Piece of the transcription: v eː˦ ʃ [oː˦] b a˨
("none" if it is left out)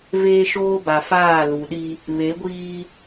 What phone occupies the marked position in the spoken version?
oː˦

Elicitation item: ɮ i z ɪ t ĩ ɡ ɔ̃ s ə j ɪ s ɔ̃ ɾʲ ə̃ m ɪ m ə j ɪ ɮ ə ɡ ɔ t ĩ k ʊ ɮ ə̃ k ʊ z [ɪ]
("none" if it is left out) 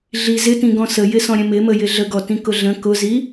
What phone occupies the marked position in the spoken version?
i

